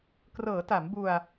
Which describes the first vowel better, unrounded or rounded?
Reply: unrounded